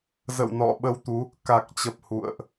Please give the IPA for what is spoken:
z ə̰˧˨ w n ɔ̰˧˨ ɓ ə˧ w t̪ u˨˦ | k a˨˩ k̚ t͡ɕ ə˨˩ p̚ h ṵ˧˨ ə̯ ʔ

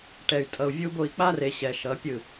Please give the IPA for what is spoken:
ʈ ɛ˨ y̯ tʼ ʌ˨ u̯ vʲ u˦ b o˦˨ i̯ k͡p a˦ r e˨ ɕ ɛ˨ ʃ ʌ˨˦ pʲ ɯ˦˨

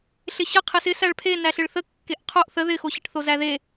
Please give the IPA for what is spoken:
ɬ ɪ ɕ ə qʰ ɪ s ɪ s æ ɭ pʰ e n æ ɬ ɪ ɭ θ ə kː e ʔ qʰ o ʔ θ ə ð ɪ x o ɕ ə ʈ θ o z æ ð e

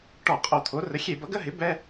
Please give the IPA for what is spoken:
ʈ ɔ˧˩˧ qʼ o˧˩˧ t̪ʰ o˩˥ r ə˩˥ xʲ e˧˩˧ b ʌ˩˥ ɡ ə˧˥˧ ɦ ɪ˩˥ b ɛ˧˥˧

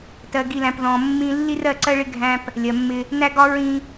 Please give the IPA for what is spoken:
t ɜ˨ ɡ i˨ l æ̃˨ p ð ɔ̃˨ mː ĩ˦ lː i˦ r ɜ˦˨ ǀ ɜ˦ ɭ ɪ˦ ɡʱ æ̃˦ p | lʲ ɜ˨ mː ɪ˦ | n æ˦ ɡ ɒ˦ ɹ ĩ˦

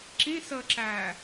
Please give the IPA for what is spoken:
ǁ ĩ s əː ǁ æː

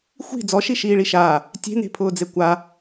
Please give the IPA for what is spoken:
xʷ i̤ d͡z ɔ ʃ i ʃ iː ɭ i ʃ aː | tʲ e̤ n e̤ pʰ ʊː d͡z e kʷ a

